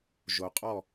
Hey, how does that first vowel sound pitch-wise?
low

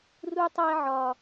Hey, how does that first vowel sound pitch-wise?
high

